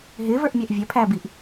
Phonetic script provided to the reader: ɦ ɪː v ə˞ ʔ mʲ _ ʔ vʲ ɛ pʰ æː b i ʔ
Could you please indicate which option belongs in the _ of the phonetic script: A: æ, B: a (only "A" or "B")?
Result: A